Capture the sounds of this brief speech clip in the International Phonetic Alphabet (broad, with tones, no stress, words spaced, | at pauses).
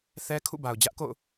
θɛ˦ kʰṵ˦˨ba˨ʊ̯d͡ʑä˦ʔko̰˦˨ʊ̯